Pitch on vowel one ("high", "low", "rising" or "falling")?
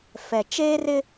low